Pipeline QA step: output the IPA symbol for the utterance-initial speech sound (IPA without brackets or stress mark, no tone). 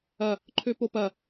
ɐ